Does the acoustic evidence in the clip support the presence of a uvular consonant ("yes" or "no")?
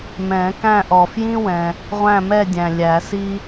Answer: yes